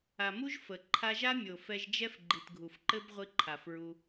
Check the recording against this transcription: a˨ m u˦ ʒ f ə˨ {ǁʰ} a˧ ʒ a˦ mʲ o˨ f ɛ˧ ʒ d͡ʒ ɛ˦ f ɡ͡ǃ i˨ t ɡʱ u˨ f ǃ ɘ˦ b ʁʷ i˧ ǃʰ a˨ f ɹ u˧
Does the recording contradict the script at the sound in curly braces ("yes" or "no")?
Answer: yes